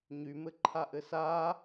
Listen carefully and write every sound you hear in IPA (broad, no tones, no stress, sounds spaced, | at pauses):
ɲ y m ɘ ǃʰ a ʔ ɘ s a